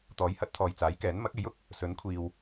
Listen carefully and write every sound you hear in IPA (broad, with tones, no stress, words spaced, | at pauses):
t̪ɔː˨˥jhɐ˨˥t̚t̪ʰɔː˨j t͡saː˨˥jkɛː˨˥n mɐ˨˥k̚e˨˥jʊ˧k̚ | sɵ˨˥nkʷʰiː˨w